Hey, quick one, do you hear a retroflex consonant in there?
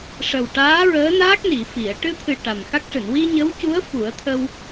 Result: yes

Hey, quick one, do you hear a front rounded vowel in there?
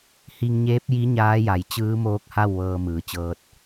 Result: no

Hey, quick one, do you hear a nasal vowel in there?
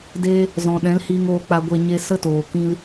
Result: yes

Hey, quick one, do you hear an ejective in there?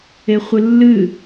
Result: no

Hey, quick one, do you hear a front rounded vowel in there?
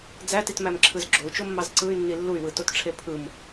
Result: yes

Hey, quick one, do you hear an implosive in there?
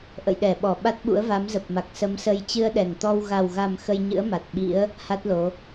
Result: yes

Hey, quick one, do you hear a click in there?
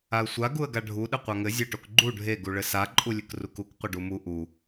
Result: yes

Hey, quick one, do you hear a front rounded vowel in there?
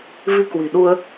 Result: no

